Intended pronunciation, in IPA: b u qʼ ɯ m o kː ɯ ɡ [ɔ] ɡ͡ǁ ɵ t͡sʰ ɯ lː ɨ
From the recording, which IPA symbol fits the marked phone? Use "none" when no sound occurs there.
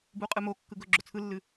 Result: ɵ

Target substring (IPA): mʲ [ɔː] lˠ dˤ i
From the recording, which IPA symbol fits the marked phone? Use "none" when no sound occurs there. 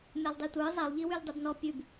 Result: ɔ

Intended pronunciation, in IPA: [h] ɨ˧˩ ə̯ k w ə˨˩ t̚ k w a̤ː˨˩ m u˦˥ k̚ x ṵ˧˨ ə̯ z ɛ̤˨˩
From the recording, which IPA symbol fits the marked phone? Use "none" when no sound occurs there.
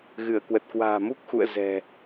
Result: ɣ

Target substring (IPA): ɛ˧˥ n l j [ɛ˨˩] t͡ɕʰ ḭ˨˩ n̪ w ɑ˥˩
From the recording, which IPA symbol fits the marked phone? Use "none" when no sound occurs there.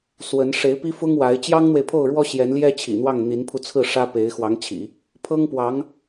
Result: ɛ˥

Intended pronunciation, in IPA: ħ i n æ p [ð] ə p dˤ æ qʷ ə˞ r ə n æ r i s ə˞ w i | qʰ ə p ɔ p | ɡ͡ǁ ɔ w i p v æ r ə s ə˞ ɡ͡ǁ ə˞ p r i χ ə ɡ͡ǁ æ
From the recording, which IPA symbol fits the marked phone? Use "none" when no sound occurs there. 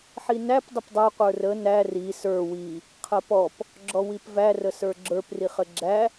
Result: dˤ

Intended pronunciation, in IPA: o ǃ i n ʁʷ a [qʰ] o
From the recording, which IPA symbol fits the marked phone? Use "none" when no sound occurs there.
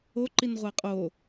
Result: qʼ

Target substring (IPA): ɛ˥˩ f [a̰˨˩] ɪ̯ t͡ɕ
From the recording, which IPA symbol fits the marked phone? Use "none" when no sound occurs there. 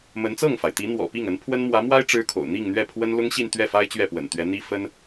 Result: a˥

